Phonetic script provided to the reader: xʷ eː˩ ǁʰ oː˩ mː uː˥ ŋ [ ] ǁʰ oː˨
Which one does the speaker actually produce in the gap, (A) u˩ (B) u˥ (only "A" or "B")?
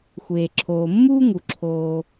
A